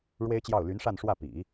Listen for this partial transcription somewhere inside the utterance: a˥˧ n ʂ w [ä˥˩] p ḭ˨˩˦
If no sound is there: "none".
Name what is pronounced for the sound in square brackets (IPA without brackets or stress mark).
ä˥˩